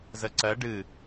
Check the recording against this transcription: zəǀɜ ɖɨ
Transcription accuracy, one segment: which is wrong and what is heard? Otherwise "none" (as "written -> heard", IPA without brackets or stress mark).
none